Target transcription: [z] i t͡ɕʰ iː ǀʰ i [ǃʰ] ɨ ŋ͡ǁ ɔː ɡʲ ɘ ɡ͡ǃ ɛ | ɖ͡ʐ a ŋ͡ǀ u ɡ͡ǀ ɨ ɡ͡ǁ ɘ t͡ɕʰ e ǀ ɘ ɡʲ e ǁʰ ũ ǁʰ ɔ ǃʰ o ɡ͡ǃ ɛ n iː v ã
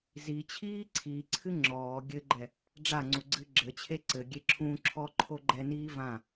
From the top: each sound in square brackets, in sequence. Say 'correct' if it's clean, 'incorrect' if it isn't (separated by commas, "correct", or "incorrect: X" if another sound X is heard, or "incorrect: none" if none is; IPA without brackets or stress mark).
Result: correct, incorrect: ǀʰ